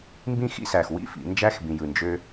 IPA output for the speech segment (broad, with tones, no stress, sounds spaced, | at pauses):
m b ĩ˥˧ x ḭ˥ s æ˧˩ x w ḭ˥˧ f ḭ˩˧ n d͡ʒ æ˥ x b ĩ˧ j ɯ˧˩ n d͡ʒ ø˥